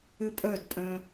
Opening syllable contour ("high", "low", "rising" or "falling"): high